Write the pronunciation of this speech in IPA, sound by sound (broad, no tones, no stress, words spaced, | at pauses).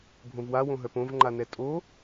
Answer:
bʱõvwa wõɦœpõv ŋ͡ǃanɛtʼo